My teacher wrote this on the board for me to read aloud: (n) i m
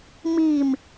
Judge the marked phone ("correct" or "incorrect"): incorrect